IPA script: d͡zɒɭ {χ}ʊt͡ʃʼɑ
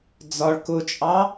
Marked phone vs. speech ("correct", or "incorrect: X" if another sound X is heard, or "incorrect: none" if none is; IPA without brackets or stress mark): incorrect: k